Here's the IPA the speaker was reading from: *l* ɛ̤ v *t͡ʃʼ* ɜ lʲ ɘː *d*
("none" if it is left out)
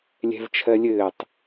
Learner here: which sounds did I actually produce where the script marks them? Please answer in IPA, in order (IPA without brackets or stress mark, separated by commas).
lʲ, t͡ʃʰ, tˤ